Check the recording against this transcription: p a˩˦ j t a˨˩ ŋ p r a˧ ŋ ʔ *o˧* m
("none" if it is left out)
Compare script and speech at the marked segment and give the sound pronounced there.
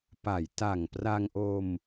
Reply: o˧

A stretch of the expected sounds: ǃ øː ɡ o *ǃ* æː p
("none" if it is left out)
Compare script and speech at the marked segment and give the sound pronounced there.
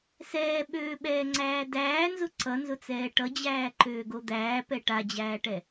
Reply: d̪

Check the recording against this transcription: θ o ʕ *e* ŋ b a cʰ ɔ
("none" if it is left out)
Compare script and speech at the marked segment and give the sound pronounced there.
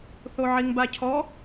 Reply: i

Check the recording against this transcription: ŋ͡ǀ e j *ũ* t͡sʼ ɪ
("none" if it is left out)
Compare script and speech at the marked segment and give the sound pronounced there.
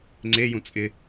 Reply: ũ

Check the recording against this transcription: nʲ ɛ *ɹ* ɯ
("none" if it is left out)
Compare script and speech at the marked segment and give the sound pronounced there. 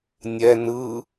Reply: n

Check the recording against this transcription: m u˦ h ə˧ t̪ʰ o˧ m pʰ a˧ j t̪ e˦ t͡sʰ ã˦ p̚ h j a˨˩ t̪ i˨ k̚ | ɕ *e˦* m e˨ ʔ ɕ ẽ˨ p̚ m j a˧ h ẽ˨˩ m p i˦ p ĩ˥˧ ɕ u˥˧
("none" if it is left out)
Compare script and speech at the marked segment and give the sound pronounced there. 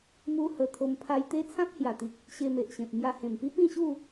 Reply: e˧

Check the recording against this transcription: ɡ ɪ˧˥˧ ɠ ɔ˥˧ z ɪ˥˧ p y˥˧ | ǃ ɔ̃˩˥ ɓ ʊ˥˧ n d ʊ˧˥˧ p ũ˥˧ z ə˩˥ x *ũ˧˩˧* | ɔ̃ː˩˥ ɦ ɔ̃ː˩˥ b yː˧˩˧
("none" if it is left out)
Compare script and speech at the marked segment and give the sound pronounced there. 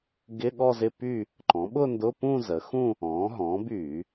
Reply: ũ˥˧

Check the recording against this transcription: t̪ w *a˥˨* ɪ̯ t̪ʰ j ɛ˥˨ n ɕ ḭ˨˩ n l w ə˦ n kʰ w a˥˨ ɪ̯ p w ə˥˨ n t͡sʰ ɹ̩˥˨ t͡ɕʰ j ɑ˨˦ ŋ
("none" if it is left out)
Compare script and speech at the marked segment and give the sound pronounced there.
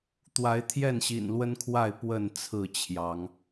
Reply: a˨˦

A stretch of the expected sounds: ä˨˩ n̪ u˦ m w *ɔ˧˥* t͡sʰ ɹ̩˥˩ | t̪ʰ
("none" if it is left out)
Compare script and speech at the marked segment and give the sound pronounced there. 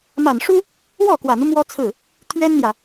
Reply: ɔ˥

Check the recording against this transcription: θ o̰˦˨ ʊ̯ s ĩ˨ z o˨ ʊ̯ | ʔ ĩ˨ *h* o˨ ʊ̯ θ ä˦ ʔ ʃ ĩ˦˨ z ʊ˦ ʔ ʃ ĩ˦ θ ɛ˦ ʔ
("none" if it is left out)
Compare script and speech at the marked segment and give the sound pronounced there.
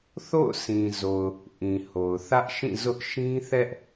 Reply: h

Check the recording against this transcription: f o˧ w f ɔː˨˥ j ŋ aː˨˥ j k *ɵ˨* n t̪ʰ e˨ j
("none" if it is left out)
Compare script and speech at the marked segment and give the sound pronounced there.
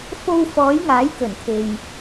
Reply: ɵ˨˩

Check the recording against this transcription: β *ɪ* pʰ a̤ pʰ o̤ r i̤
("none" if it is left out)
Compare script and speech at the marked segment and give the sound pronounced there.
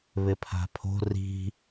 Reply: ɪ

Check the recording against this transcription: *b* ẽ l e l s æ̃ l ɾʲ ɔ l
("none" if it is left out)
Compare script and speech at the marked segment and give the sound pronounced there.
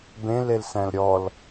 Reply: b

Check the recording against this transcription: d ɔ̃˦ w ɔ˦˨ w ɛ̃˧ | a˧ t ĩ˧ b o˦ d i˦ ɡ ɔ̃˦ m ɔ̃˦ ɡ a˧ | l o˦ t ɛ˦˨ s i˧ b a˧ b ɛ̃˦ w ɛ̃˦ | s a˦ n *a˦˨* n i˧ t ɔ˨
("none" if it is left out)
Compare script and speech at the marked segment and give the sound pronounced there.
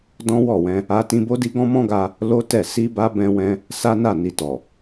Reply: a˦˨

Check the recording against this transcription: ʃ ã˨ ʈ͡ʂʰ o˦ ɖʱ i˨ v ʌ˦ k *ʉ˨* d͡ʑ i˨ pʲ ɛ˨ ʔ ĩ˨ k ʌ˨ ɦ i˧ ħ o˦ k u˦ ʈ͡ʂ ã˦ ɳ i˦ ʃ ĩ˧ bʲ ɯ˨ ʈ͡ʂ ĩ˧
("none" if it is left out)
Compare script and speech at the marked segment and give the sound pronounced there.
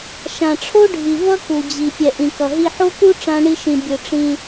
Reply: u˨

